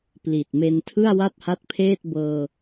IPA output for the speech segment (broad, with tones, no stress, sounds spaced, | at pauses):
p l i˨˩ t̚ m e˧ n tʰ ɯ˥˩ a̯ w a˥˩ t̚ h a˦˥ t̚ pʰ eː˥˩ t̚ b ɤː˧